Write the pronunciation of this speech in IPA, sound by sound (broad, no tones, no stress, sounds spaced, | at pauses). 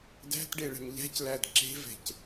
d æ̤ t ɖ e ɭ ɛ̤ m ʎ æ̤ c l æ d ǁ e̤ v ɛ̤ c